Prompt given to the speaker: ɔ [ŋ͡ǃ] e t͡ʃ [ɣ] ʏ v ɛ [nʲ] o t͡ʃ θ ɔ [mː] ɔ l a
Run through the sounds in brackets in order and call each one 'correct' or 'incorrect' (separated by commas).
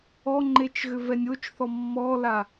correct, correct, correct, correct